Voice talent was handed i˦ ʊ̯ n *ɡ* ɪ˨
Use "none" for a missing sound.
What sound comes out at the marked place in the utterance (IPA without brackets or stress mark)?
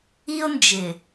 d͡ʒ